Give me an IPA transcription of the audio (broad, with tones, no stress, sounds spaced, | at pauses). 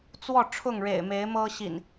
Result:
t͡s w ɔ˥˨ ʈ͡ʂʰ ʊ˥˨ ŋ ɻ ḛ˨˩ ɪ̯ m e˨˦ ɪ̯ m ɤ˦ ɕ ḭ˨˩ n